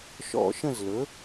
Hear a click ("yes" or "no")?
no